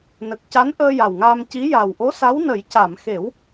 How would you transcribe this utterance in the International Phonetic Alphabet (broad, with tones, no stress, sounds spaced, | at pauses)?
n ə˨˩ k̚ c a˧˥ n ʔ əː˧ j a˨˩ w ŋ aː˧ m c i˧˥ j a˨˩ w ʔ o˧˥ s a˧˥ w n ə˨˩˦ j c a˨˩˨ m x e˨˩˦ w